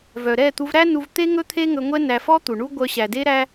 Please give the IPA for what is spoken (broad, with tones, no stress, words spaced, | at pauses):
vœ˨ ɾɛ˦˨t̪u˧vɾæ˦ nu˧vt̪e˦ ŋɵ˦t̪ʰe˦ ŋɵ˧ŋʷɛ˦ næ˧fɔ˦t̪u˨ɳu˦ ɡʷœ˧ɕæ˨de˦ ɾæ˦